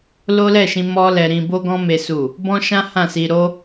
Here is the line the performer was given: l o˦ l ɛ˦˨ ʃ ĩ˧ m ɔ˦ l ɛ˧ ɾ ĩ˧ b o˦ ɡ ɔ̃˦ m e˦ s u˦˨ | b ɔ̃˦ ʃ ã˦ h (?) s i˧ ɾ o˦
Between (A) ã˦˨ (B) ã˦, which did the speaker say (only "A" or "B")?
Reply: A